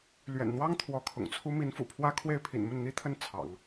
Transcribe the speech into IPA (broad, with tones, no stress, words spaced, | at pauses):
lɥɛ̰˨˩nn̪wɑ˥ŋ t̪ʰwɔ˧˥kʰʊ̰˨˩ŋt͡sʰu˥ mi˧˥nfṵ˨˩ pʰwä˥kʰwe˥˩ɪ̯pʰḭ˨˩nmə˥˩n n̪i˥t̪ʰə˥˩n t͡sʰɑ̰˨˩˦ŋ